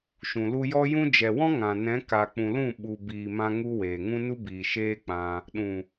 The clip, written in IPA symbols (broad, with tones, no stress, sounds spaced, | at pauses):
ʃ ũ˨ l u˧ j ɔ˦ j ũ˦ d͡ʒ ɛ˨ w ɔ̃˦ ŋ ã˨ n ɛ̃˨˦ k a˨ k͡p ũ˨ l ũ˦˨ ɓ u˨ b iː˨ m ã˧ ŋ u˧ w eː˨ ŋ ũ˦ n u˦ b iː˨ ʃ eː˦ k͡p ã˧ | ɗ ũ˨